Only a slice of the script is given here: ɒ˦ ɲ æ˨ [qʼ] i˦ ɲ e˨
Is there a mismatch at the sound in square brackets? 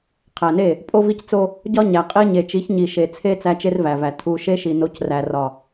no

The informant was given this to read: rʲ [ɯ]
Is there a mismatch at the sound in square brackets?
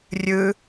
no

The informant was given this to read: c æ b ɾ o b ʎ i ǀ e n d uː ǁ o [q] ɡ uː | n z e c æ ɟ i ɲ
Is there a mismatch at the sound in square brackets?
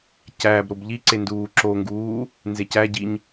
yes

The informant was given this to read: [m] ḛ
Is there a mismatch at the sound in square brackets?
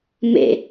no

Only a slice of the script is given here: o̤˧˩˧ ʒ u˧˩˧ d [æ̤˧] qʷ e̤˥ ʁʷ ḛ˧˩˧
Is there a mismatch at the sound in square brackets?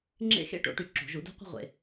yes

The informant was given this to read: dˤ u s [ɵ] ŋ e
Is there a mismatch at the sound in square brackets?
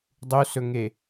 no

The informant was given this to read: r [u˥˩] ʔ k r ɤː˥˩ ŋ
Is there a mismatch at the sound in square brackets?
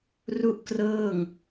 no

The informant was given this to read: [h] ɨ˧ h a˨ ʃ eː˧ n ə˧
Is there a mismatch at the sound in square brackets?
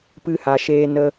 yes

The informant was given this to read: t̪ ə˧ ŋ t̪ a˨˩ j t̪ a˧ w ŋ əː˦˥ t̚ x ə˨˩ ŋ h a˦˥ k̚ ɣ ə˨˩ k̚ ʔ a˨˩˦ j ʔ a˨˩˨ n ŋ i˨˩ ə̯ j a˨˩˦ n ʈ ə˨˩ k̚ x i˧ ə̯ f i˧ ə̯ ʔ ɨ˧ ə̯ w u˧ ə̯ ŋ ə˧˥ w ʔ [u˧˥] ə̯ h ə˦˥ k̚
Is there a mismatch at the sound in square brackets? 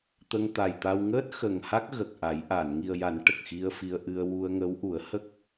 yes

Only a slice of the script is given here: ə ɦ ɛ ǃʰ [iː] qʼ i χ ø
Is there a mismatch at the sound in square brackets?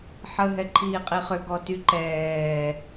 no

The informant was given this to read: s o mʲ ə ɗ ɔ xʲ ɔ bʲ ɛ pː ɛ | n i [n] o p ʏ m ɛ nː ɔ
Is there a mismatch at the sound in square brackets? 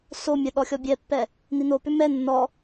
no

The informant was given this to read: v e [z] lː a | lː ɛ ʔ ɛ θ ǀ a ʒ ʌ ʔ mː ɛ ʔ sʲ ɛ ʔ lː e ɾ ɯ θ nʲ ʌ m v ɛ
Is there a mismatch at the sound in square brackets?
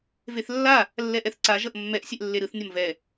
yes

